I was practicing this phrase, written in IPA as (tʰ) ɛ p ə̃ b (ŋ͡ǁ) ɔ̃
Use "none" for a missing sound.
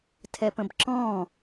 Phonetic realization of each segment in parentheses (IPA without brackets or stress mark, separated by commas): tʰ, ǁ